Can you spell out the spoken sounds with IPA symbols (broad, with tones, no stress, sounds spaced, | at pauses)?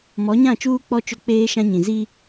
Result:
m ɔ˨˦ ɲ ã˦˨ t͡ʃ uː˦ k͡p ɔ˦ t͡ʃ ʊ˦ k͡p eː˦ ʃ ã˦ ɲ ĩ˨ z i˦